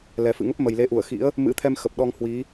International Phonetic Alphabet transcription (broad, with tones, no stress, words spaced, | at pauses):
lɛ˨˩fɨ̰˧˨ŋə˦˥p̚mə˨˩j le˨˦ʔu˧˩ə̯xḭ˧˥ə̯ | mɨ̰˧˥t̪ʰɛ˧mxə˨˩p̚ ɗɔ˧ŋhwi˨˦